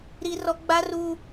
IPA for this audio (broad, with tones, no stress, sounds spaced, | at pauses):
ɾ i˦ r ɔ˦ ɡ͡b a˦ r u˦